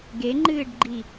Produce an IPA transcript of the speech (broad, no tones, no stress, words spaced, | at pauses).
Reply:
ɡeŋ͡ǃɨːɖɡ͡ǃi